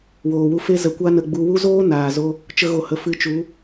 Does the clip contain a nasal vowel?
no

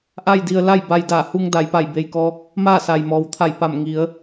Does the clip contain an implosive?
no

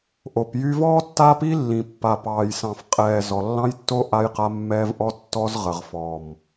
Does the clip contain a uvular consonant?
yes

